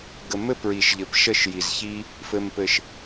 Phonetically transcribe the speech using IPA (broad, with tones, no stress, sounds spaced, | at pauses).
ɡ ə˨ m ɘ˦ p ɹ i˨ ʃ ʎ ɘ˨ p ʃ ə˦˨ ʃ j i˨ z ç i˦ | f ɘ˨ m p ɘ˨ ʃ